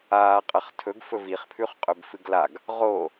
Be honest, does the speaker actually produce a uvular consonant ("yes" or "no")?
yes